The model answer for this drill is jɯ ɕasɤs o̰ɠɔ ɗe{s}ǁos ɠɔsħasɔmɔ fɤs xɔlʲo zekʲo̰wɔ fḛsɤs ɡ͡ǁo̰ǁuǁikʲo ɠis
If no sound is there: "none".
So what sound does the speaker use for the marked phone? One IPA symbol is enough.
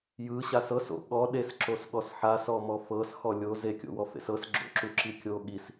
s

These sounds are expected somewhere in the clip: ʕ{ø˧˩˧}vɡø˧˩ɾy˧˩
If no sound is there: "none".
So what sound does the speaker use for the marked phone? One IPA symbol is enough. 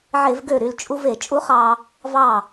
e˧˩˧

